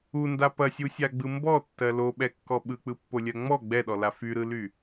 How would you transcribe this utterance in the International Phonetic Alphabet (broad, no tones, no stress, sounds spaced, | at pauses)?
u n d a p ɐ sʲ u sʲ a ɡ͡b ɯ m b ɔ tː ɜ l o ɓ ɛ kː ɔ ɓ ɯ k͡p ɯ pː o lʲ ɜ ŋ͡m ɔ ɡ͡b ɛ ɗ ɔ l a f y ɾ ɯ l y